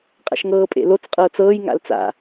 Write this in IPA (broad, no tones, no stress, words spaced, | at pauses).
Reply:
qʼa̰ʃŋɤːpʼḛlot͡s qʼɤːt͡sɤːj ŋa̰lt͡sa̰